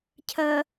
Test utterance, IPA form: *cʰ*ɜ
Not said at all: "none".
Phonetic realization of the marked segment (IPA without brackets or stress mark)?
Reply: cʰ